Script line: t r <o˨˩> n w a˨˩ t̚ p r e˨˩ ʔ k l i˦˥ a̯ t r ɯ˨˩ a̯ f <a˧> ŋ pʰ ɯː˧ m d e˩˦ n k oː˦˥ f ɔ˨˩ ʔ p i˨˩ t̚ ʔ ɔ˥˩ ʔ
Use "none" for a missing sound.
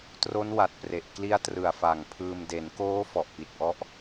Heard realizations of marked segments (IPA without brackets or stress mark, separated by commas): o˦˥, a˨˩